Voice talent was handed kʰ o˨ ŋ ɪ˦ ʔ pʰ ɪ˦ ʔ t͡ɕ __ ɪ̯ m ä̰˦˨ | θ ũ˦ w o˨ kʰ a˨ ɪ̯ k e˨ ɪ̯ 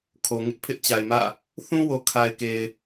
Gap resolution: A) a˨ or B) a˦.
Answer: A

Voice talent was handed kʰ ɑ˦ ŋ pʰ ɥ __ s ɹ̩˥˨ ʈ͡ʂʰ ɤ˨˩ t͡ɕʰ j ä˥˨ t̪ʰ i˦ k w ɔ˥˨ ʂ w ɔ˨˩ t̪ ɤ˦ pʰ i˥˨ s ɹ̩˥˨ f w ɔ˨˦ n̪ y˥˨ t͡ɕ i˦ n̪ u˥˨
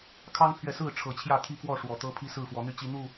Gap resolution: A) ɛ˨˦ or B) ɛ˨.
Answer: B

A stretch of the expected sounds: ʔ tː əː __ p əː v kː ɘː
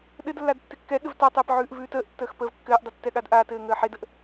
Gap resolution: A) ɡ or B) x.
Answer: B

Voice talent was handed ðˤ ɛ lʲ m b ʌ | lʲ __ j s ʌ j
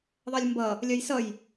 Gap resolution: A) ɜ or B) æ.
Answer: A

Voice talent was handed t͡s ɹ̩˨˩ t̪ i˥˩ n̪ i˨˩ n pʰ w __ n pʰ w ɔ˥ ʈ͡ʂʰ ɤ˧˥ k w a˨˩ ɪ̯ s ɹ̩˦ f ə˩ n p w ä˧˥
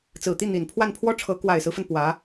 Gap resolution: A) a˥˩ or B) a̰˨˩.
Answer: A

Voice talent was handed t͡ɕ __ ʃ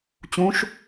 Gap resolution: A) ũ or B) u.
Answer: A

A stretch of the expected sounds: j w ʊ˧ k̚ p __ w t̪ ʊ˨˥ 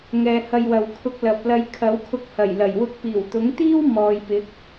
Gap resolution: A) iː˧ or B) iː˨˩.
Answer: B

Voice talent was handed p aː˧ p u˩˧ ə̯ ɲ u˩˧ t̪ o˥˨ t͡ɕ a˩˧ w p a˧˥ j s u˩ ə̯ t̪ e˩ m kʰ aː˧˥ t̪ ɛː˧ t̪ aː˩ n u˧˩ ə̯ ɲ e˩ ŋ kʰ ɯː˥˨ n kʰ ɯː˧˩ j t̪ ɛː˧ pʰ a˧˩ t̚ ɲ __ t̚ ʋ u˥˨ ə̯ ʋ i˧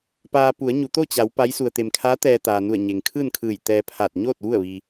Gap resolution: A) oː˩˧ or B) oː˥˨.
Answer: B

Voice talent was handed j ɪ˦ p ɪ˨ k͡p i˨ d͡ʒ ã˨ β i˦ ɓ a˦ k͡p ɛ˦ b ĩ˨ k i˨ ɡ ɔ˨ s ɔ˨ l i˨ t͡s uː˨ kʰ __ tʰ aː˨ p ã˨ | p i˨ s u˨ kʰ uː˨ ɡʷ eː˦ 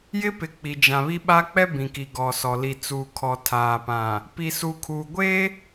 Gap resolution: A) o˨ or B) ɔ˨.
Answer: B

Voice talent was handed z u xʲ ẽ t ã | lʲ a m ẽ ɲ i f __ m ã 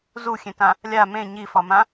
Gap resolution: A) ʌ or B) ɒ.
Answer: B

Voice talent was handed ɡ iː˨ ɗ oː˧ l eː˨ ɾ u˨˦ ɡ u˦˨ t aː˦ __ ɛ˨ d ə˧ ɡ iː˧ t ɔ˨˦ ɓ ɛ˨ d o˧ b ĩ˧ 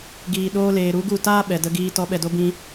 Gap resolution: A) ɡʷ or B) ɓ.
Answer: B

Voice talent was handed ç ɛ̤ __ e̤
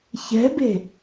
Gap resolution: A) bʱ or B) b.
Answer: B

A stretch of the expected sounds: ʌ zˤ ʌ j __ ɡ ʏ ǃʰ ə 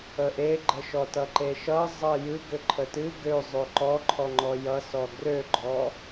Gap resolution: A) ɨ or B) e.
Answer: A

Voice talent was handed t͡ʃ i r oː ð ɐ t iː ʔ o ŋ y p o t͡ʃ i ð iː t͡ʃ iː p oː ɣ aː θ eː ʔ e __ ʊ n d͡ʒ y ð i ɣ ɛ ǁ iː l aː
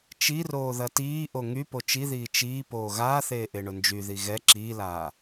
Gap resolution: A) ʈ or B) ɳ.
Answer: B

